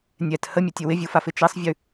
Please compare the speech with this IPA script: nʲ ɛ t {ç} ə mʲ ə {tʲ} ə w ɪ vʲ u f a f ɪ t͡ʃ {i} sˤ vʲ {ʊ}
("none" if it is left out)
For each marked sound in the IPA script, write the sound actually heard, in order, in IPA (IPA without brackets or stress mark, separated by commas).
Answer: h, tʲ, i, ʉ